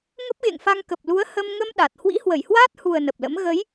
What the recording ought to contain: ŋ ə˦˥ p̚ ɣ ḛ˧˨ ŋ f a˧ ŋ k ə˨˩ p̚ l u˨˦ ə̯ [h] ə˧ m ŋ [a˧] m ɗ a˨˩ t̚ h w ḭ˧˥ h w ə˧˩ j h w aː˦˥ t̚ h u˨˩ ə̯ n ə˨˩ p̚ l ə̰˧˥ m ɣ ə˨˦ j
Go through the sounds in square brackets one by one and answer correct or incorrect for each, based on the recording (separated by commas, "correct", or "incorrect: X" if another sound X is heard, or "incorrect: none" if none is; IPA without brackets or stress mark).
correct, incorrect: ə˧